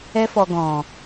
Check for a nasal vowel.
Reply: present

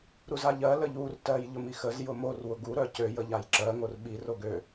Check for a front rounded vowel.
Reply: present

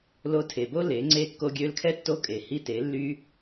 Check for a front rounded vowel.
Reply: present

